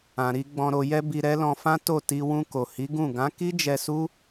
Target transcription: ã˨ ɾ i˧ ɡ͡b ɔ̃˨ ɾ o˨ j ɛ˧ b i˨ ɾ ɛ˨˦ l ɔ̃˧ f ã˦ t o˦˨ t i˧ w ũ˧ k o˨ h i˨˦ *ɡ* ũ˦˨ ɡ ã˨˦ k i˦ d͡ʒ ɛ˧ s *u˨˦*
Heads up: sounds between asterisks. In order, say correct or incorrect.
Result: correct, incorrect: u˦

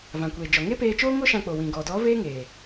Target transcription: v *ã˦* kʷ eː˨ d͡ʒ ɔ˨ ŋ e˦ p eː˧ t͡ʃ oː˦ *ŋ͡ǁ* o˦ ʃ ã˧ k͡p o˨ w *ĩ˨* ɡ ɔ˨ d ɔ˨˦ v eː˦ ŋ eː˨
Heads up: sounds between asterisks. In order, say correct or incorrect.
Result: incorrect: ã˨, incorrect: ŋ, correct

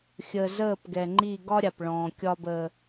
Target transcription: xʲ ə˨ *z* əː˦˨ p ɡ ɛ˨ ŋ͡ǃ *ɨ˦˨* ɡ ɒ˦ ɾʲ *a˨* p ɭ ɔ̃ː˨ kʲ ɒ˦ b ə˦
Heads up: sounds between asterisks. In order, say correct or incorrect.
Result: correct, incorrect: i˦˨, correct

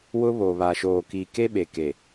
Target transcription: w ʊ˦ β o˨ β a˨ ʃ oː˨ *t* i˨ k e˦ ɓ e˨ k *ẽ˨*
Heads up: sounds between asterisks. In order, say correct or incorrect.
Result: incorrect: k, incorrect: e˨

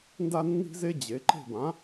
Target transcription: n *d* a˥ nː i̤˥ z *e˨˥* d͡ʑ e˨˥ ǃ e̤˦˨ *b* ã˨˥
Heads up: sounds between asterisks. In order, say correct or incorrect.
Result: correct, incorrect: e˥, correct

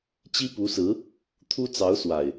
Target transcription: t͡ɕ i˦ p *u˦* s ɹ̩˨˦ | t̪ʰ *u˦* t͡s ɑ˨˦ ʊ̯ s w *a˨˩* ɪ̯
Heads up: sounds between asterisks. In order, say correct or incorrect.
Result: incorrect: u˨˦, correct, correct

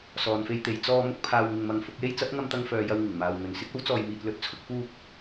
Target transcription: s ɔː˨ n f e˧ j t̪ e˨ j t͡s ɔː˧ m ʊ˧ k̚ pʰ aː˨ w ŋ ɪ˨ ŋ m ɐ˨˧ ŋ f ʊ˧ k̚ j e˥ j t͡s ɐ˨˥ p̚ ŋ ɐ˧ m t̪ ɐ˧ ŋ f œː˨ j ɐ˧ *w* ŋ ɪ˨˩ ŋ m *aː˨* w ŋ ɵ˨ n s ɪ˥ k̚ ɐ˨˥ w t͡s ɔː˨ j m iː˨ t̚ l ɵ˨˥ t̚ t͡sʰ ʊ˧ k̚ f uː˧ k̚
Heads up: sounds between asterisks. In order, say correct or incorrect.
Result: correct, correct

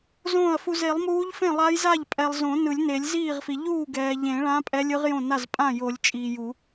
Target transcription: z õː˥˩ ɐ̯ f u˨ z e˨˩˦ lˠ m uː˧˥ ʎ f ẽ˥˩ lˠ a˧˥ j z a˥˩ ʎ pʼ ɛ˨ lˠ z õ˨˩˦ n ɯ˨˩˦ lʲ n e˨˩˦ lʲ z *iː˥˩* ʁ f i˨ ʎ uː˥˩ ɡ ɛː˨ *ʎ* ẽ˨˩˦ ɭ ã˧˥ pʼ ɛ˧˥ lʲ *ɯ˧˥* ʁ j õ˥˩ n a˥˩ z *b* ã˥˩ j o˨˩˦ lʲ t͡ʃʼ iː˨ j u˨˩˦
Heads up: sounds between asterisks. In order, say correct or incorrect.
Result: correct, correct, correct, incorrect: pʼ

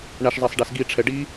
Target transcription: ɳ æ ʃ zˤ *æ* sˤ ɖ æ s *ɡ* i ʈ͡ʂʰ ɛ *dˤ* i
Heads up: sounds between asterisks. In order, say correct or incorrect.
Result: correct, correct, incorrect: ɖ

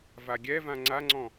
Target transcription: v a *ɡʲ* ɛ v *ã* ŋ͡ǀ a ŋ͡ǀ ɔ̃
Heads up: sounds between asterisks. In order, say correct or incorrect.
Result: correct, correct

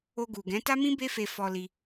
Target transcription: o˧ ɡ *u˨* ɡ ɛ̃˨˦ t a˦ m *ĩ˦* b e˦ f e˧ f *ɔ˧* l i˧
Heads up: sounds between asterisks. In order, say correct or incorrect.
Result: correct, correct, correct

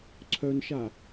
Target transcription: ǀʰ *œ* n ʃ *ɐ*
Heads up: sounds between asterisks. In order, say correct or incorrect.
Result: correct, incorrect: a

